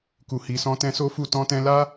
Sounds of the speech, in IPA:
ku˨hi˨sɔ̃˧ tɛ̃˧ so˦fu˦˨ tɔ̃˧tɛ̃˧la˦

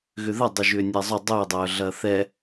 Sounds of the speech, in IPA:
ɣʏðɐ dˤʊʒʏːnʲɛzˤʊ dˤʏ dˤœːɮɐːθɛ

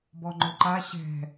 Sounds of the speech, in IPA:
bɔŋ͡ǃʊǃa ɕɛ̤

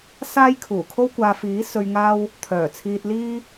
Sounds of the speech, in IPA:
saː˥jkʰuː˨˩kʰo˥wkʷaː˧ fiː˨˥ sɵ˧ɥŋaː˥w | t̪ʰœː˨˩t͡sʰiː˧t̚liː˥

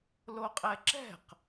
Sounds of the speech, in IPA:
loqʼɛǁɛ̤q

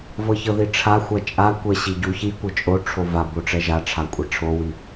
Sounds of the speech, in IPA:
vɤçɤðiʈ͡ʂʰa xʷat͡ʃʼa kʷɛɕiɟu çikʷɤ t͡ʃʼoʈ͡ʂʰo va boʈ͡ʂɛʒaʈ͡ʂʰa kʷʼaʈ͡ʂʰowi

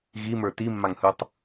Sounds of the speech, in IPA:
ɣimə˞ timːaŋhɯtˤ

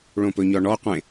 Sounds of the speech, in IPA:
ɭõpɵɲɔɳɔ qʷẽ

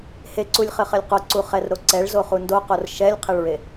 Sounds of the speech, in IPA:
heǀulʲχɘχɘlʲ qoǀu χɛrɾoǀɛɭ zoχundoqor ʃɛlʲqʰeɭɹe

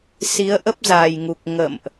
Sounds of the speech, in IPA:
si˨˦ə̯ʔə˦˥p̚ zaː˨˩jŋu˨˩k̚ ŋə̰˧˨mʔ

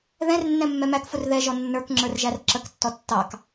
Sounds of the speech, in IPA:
ðɛ̃rnːɛ̃ mːɛmækfʊr ðɛʒɔ nːə˞k ŋ͡ǁə˞rʒærǁəktːɔ tːɑk

